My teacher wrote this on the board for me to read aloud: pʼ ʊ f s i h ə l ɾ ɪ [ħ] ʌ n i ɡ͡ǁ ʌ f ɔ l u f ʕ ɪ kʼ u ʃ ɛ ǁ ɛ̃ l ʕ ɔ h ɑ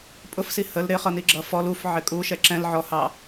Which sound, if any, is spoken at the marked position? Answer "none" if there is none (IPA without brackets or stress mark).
χ